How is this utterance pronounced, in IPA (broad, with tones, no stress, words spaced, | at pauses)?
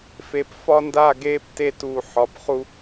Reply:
fe˨p fɒ˦nda˦˨ɡeː˦p te˦˨tuː˨ ħɒ˨˦p χu˦